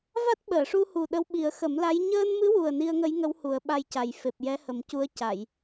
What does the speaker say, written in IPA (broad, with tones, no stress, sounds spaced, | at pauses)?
v a˦˥ t̚ ɓ əː˨˩˨ ʂ u˧ h u˨˩ ɗ ə˧˥ w ɓ i˨˩˦ ə̯ x ə˨˩˦ m l a˧˥ j ɲ əː˧ n m ɨ˧˥ w u˨˩ ə̯ n i˧ ə̯ ŋ ə˧˥ j ŋ ə˧˥ w h u˨˩˦ ə̯ ɓ a˧ j c a˨˩ j f e˨˩ p̚ j ɛ˧˥ h ə˨˩ m c u˧˥ ə̯ c a˨˩˨ j